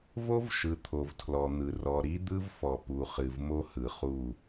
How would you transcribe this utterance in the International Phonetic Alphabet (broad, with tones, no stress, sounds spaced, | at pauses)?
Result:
v o˦ v ʃ ɯ˨ t̪ʰ o˨ v tʰ l ɔ˨ n̪ ɯ˨ r ɔ˨ ɾ i˦ d̪ ɯ˦ v f ɔ˨ p u˨ χ ɨ˨ v m o˦ h ɯ˨ χ u˦˨